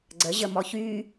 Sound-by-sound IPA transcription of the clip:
ɡ͡ǀəʑəmɔç y

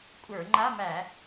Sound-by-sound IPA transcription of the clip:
kʷʼə˞˧˩˧ ŋ͡ǃa˧˥˧ mæ˧˩˧

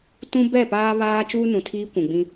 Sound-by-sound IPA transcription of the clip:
tũ˦ bɛ˦˨paː˦ βaː˦ t͡ʃuː˦nũ˨tʰiː˦ kʷũ˨ɡ͡bĩ˦

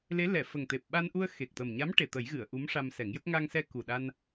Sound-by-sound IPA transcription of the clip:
le˧˥lɛ˨˩˨ fə˨˩ŋt̪e˨˩p̚ɓa˧nʔu˧ə̯ xe˨˩k̚t̪ə˨˩mɲa˧˥m ʈe˨˩t̪ə˨˩˦jɣɨ˨˩˨ə̯ ʔu˧˥mʂa˧msɛ˨˩˦ŋjə˦˥k̚ ŋa˧ŋsɛ˧ ku˨˩ɗa˧n

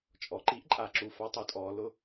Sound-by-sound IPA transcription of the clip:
t͡ʃʼɔ˩ǃi˧˥ʔǃʼa˩˧ǁu˩ fa˧˥tˤʊ˩˧tʼɔ˩˧ lʊ˧

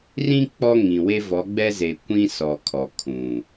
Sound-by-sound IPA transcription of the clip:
rĩ˦ k͡pɔ˦ŋĩ˨we˦ vɔ˨˦ɡ͡bɛ˦ze˨kʷĩ˦ sɔ˨kʰɔ˨ kʰũ˨

